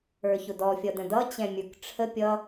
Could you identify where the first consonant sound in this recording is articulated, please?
palatal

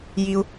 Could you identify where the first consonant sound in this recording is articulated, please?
palatal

